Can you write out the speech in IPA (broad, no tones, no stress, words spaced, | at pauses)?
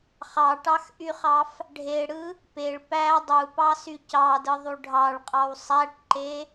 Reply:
χɑʈɑxʔyχɑf | ɖʱeɽɯ | peɭ pæ dˤupɑsy cɑdɯðˤu ɖʱɑɭqʼɑw sˤæʈǃe